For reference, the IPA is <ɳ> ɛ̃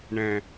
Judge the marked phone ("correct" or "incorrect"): correct